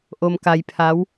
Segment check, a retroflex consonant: absent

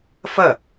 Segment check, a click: absent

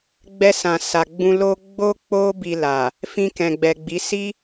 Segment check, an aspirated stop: absent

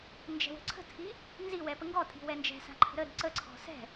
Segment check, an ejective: present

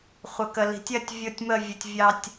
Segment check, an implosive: absent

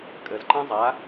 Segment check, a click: present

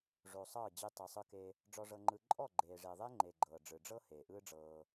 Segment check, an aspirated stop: absent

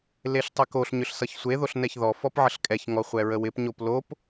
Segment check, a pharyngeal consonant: present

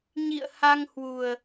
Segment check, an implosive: absent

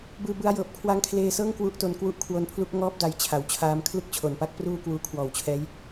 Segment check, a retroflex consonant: absent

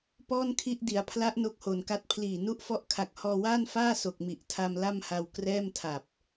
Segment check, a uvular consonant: absent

